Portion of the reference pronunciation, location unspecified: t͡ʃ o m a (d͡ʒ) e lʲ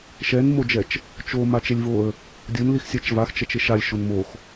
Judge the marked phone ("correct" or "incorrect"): incorrect